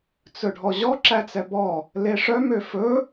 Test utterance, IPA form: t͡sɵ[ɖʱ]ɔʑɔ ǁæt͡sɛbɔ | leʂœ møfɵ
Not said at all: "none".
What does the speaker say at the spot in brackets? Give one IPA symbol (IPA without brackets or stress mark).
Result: ɖʱ